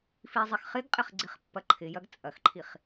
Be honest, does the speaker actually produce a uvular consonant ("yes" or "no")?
yes